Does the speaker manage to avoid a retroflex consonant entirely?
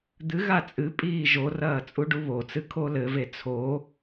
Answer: no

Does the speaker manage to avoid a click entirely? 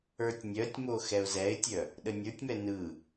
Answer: yes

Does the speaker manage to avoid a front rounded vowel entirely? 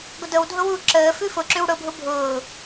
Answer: yes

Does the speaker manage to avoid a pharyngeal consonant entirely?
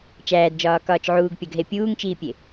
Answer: no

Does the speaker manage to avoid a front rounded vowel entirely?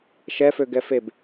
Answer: no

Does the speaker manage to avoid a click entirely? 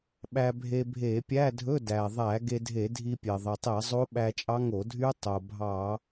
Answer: yes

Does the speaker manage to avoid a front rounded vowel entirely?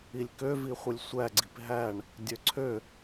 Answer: no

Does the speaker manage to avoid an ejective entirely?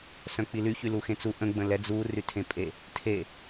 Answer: no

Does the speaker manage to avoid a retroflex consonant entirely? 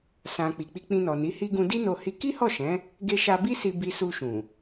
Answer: yes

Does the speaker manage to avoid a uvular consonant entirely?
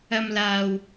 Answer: yes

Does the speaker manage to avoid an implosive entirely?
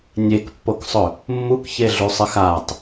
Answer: yes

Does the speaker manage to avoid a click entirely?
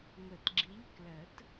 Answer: no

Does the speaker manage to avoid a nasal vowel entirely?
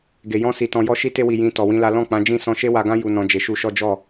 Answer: no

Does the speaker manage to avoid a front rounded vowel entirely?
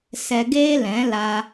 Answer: yes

